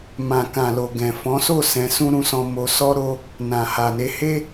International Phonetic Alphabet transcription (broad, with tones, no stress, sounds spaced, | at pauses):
m ã˨ k ã˨ l o˨ ɡ ɛ̃˨ f ɔ̃˨˦ s o˦˨ s ɛ̃˧ s ũ˦ ɾ ũ˧ s ɔ̃˧ m o˧ s ɔ˦ ɾ o˦ | n ã˨ h a˨ n e˧ h e˦